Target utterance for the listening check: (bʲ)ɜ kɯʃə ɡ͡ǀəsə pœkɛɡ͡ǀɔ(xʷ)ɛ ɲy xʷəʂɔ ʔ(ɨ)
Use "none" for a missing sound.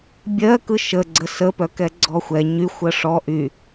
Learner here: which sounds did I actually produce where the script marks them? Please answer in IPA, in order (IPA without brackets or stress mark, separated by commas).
bʲ, xʷ, y